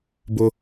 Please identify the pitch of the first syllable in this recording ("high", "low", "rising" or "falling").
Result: high